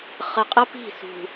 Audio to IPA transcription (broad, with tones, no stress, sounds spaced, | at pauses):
χ ə˨ qʼ ə˦ p i̤˦˨ s ṳ˨